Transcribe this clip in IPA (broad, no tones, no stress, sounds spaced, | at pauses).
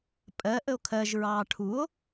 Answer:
pʼ ɜ ʔ ə o̯ kʰ ɜ ʒ ɹ ɑː ʈʰ u o̯